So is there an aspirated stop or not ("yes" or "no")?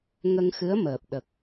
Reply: no